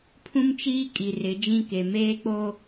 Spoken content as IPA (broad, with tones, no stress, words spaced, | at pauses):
pʰũ˦mt͡ʃiː˦ kʼi˨rɪ˨˦d͡ʒĩ˦ke˨ meː˦k͡poː˦